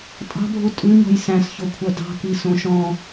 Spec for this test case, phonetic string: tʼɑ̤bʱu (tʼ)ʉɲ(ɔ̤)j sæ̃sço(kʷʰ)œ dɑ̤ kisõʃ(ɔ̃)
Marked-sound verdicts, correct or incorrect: correct, correct, correct, correct

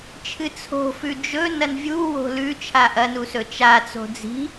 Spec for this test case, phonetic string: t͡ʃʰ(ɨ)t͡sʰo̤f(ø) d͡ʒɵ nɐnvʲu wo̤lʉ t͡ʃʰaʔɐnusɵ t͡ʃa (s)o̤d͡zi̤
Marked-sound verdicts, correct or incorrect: correct, incorrect, incorrect

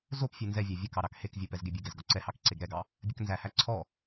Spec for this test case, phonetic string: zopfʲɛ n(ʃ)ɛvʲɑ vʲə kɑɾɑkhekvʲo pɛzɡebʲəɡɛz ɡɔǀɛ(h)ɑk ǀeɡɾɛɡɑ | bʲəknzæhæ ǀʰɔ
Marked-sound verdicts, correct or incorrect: incorrect, correct

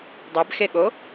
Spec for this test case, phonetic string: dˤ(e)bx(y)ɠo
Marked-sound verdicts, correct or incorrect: correct, incorrect

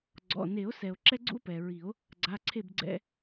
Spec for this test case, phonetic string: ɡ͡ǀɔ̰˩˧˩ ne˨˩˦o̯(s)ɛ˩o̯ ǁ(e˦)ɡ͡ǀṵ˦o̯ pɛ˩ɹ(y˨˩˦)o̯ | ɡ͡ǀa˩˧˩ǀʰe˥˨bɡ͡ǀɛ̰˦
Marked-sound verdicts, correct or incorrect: correct, incorrect, incorrect

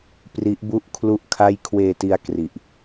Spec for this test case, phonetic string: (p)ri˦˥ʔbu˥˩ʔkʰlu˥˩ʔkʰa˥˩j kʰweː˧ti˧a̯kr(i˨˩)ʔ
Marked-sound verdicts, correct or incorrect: correct, correct

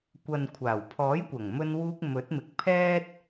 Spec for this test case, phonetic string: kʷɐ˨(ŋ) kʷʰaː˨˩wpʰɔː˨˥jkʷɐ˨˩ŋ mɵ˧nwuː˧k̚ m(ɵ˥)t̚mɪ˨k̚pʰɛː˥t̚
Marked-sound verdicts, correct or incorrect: incorrect, incorrect

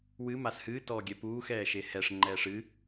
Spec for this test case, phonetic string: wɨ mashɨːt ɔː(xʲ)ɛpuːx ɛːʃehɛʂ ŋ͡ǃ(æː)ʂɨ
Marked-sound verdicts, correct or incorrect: incorrect, incorrect

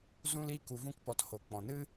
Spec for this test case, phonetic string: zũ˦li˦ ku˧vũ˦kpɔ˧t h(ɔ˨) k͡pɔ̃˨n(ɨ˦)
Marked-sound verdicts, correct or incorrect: incorrect, correct

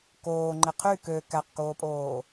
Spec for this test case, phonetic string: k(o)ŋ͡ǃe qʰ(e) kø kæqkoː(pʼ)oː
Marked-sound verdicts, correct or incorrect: incorrect, incorrect, correct

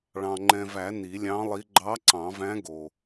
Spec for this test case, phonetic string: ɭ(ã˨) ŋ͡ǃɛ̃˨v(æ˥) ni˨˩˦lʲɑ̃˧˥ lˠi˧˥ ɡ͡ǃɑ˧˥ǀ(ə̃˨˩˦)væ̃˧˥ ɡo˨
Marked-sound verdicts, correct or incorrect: incorrect, incorrect, incorrect

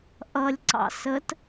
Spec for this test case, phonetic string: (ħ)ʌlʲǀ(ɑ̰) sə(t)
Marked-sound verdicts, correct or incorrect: incorrect, correct, correct

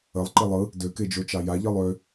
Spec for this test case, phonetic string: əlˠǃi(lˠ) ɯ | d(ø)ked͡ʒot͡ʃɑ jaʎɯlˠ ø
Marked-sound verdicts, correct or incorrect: correct, correct

